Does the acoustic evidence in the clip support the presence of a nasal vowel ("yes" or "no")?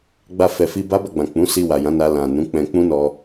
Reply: yes